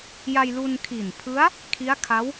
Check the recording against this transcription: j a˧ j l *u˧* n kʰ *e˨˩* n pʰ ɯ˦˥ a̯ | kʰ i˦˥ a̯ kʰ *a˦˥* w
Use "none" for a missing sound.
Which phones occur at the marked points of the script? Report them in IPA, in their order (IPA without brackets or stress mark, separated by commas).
u˧, i˨˩, a˦˥